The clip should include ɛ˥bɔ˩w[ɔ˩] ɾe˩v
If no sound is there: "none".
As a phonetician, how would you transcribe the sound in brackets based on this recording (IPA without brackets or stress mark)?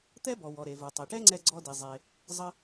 ɔ˩